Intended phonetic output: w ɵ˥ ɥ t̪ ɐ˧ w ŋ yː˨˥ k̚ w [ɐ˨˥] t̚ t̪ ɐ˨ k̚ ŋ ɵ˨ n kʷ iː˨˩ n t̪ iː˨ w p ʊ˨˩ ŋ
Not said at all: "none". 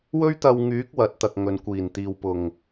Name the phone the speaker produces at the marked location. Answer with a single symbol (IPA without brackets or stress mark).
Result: ɐ˨˥